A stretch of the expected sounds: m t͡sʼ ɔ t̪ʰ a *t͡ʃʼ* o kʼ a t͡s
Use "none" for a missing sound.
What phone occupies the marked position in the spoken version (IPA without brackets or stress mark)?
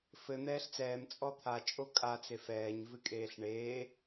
t͡ʃʼ